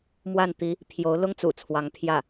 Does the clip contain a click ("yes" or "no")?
no